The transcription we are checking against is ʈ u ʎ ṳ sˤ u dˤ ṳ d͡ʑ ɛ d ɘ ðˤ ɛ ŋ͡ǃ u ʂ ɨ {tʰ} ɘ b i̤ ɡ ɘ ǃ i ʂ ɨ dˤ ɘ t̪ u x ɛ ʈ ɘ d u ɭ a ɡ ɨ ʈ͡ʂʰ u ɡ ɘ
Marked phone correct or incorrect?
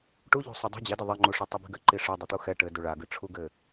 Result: incorrect